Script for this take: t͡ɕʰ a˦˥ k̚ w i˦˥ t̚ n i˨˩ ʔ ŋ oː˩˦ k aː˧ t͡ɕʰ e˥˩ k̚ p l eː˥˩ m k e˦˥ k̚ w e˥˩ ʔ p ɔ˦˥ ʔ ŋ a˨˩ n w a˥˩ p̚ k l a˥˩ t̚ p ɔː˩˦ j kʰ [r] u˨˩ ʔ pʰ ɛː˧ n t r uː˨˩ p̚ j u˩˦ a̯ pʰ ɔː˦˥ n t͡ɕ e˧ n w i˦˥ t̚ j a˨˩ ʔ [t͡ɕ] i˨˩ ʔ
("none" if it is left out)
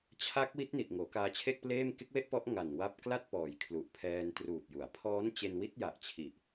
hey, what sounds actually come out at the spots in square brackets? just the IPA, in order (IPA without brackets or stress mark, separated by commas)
l, t͡ɕʰ